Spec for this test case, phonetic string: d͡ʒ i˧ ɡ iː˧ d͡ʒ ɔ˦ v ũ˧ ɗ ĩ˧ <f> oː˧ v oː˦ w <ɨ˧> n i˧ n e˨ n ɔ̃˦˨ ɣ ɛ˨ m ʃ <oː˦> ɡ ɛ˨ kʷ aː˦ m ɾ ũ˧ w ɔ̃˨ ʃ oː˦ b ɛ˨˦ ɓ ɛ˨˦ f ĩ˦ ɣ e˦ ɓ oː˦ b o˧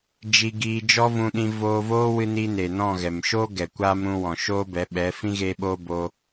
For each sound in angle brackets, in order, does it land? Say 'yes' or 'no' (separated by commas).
no, yes, yes